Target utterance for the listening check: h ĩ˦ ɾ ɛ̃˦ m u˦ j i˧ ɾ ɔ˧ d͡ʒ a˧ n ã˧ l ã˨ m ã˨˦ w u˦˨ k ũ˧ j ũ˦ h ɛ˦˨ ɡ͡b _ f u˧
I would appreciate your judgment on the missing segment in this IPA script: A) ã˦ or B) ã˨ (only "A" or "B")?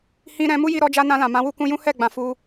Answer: B